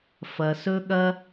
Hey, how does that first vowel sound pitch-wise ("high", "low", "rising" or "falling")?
low